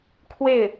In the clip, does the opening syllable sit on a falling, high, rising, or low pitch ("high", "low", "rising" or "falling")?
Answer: falling